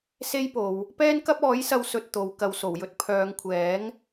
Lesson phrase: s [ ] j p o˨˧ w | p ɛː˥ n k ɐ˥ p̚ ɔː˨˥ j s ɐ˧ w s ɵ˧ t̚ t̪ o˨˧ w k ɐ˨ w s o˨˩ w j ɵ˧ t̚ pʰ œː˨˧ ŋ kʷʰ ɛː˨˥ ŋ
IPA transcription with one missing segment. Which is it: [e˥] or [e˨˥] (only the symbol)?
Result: e˥